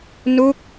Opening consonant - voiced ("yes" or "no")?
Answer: yes